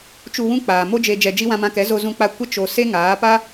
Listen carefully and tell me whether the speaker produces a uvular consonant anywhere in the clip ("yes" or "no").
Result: no